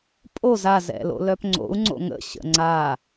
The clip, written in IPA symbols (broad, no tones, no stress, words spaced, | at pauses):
pʼoz azɛ̰ lo̰lœpŋ͡ǀo̰u̯ŋ͡ǀo̰ ŋə̰ɕə̰ ŋ͡ǀa